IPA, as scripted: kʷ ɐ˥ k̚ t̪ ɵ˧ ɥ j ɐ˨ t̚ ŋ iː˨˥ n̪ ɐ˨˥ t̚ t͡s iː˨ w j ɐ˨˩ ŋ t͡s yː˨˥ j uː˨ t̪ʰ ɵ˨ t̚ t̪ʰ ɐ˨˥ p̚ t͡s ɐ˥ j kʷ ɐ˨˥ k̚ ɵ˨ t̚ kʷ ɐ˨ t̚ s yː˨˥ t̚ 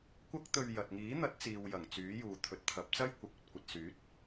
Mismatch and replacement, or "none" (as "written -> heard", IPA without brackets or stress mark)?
none